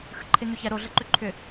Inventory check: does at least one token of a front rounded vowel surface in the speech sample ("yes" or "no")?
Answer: yes